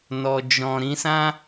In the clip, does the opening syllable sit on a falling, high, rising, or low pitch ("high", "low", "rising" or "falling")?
low